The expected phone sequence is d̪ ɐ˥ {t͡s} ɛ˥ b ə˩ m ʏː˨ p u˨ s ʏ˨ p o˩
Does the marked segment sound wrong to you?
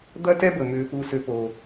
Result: yes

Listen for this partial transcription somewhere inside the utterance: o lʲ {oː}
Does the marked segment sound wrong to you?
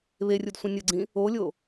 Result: yes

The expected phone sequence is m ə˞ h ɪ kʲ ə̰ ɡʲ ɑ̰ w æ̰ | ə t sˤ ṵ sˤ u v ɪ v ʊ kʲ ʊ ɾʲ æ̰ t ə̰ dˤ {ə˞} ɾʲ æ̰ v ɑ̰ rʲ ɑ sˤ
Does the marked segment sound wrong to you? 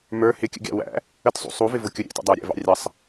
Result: no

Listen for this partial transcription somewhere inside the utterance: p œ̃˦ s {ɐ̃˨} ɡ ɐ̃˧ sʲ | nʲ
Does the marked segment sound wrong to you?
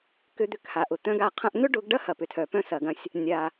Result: yes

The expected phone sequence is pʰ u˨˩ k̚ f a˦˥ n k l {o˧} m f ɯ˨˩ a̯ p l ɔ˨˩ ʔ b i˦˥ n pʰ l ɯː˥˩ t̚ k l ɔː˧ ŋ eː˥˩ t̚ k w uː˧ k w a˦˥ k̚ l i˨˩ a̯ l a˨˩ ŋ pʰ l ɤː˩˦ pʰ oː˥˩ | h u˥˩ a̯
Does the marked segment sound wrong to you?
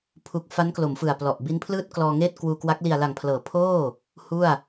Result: yes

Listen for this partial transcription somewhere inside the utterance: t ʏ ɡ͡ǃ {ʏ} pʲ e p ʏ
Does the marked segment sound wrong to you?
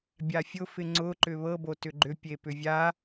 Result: no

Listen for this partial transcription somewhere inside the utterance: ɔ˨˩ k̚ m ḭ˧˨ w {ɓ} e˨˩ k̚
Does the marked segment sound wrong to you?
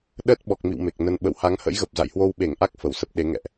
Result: yes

